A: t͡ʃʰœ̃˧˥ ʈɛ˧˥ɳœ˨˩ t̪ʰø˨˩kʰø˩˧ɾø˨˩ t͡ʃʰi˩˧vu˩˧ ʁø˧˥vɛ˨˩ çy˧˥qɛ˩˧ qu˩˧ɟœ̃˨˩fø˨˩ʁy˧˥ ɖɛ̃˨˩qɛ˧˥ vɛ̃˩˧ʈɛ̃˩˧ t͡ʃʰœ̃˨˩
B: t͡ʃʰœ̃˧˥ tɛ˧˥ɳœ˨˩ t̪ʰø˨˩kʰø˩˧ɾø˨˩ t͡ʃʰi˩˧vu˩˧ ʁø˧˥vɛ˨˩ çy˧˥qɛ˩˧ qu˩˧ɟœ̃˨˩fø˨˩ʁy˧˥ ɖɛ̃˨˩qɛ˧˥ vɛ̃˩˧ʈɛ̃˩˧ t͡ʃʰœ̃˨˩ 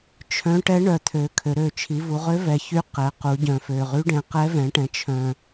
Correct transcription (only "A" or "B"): A